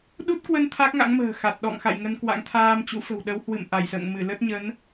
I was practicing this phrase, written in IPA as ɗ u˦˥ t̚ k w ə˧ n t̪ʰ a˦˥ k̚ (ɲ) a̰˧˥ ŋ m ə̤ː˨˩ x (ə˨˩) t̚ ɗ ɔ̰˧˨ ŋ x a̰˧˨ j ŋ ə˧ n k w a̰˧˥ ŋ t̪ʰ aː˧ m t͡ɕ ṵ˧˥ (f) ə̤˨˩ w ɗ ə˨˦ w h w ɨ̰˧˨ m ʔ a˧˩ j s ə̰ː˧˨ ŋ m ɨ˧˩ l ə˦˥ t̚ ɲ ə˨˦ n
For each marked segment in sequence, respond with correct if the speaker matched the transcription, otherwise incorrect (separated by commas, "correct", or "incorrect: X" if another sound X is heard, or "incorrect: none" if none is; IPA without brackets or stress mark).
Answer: incorrect: ŋ, incorrect: a˨˩, correct